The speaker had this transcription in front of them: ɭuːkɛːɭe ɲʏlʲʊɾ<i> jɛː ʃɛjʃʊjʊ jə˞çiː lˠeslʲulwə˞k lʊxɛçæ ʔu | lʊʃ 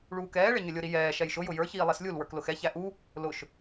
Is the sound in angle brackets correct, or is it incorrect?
correct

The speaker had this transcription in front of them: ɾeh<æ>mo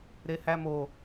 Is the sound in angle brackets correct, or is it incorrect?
correct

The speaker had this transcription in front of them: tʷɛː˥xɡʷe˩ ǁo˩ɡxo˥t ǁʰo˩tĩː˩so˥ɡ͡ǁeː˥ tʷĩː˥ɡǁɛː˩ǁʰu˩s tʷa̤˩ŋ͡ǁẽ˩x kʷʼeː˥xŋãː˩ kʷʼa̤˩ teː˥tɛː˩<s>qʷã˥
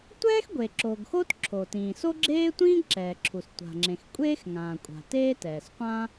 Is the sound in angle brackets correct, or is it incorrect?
correct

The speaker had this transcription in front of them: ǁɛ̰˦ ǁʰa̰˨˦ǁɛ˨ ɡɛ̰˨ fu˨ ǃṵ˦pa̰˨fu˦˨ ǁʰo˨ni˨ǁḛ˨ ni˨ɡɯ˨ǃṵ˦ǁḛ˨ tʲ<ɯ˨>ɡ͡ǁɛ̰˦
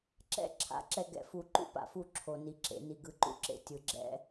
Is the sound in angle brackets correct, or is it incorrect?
correct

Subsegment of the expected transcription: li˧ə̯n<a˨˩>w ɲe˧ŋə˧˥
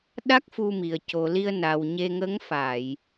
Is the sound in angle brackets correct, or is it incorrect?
correct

